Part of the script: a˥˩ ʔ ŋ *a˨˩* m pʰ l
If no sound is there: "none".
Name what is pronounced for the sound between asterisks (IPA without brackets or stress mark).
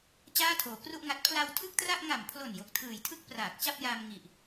a˨˩